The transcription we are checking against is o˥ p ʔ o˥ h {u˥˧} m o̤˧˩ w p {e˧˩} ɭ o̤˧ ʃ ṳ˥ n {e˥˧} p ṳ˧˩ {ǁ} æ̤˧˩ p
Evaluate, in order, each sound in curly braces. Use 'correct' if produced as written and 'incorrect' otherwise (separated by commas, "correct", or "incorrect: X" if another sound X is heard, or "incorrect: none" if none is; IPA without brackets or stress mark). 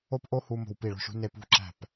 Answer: incorrect: u˧, incorrect: i˧˩, correct, correct